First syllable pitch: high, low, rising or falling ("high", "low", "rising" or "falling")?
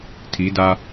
rising